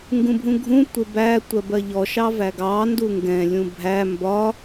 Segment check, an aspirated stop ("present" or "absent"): absent